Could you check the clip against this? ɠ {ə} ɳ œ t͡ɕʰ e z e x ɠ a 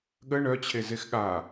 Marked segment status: correct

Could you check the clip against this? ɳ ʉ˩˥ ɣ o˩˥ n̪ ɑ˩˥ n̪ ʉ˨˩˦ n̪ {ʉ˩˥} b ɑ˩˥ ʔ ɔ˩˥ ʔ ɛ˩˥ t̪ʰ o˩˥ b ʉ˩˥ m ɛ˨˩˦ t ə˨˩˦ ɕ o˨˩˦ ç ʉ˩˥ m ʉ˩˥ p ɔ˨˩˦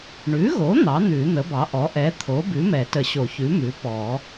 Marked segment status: incorrect: ə˩˥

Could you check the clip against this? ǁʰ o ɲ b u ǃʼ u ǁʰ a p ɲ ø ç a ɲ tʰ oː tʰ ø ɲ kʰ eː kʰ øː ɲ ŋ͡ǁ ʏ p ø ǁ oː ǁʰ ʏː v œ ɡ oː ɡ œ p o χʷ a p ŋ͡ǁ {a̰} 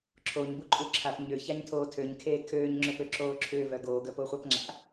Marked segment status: correct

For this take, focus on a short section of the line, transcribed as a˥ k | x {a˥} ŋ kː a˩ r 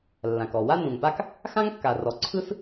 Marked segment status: incorrect: ã˥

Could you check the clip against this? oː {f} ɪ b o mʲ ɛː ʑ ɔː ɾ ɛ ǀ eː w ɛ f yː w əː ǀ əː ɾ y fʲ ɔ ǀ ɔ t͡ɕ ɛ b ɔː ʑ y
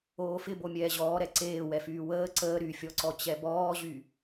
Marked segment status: correct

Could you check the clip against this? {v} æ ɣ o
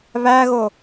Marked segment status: incorrect: β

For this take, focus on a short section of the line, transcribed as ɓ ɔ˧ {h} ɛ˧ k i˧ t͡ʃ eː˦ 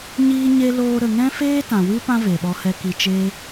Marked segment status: correct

